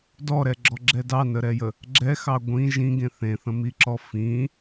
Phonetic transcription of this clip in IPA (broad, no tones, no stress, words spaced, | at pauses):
dɔɾɛɡ͡ǁɔɡ͡ǁɛ dɑnəɾɛjə | ɡ͡ǁɛxɑ ɡʷĩ ʒĩɡẽ θẽθə̃miǁɔ fĩ